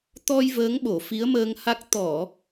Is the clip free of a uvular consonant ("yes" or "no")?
yes